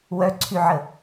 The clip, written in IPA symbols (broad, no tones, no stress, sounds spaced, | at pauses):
w œ ǀʰ y ʕ ə